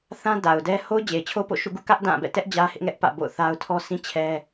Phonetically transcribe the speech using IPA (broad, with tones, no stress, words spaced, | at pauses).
θã˦ da˨ʊ̯dɛ˦ ho˦ʊ̯d͡ʑe˨ɪ̯t͡ɕʰo˦po̰˦˨ ʃṵ˦˨ɡṵ˦˨kä˦ʔ dã˦˨ bɛ̰˦˨tɛ˦ʔ d͡ʑä˦hɪ˦ʔŋɛ˦ʔpä̰˦˨ bo̰˦˨ʊ̯θa˦ʊ̯ tʰɔ˦sʰĩ˦ t͡ɕʰɛ˦